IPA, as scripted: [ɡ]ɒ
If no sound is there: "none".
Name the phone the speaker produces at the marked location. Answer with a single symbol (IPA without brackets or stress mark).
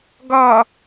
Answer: ɡ